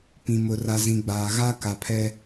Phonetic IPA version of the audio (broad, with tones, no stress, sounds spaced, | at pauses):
p ĩ˨ m ʊ˨ r a˨ z ĩ˨ ɡ͡b aː˨ ɣ a˦ k a˨ pʰ ɛ˦